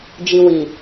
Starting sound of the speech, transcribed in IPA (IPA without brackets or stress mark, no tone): d͡ʒ